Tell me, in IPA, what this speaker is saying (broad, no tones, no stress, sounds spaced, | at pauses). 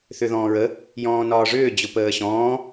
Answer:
θ ʏ ð ɔ̃ː ɹ ə | j ɔ̃ː n ɒː ʐ ʏː d͡ʑ ʊ p əː ɕ ɔ̃ː